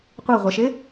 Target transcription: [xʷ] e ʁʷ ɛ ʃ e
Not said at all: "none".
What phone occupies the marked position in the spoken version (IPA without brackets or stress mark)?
qʷ